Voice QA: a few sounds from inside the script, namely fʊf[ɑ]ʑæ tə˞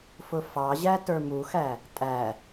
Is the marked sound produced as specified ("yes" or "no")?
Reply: yes